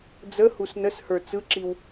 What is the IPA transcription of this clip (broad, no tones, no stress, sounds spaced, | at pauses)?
d͡z ə h u s n ə s h ə˞ t͡s ɯ ǁ i w